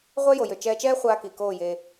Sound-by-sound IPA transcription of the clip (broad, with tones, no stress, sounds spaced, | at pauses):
ʁʷ ɛ˦ j o˨ j ø˨ t͡ʃ ɛː˧ t͡ʃ ɛː˦ χʷ aː˧ k i˨ k oː˦˨ j e˧